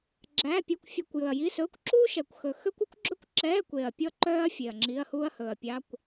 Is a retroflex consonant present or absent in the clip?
absent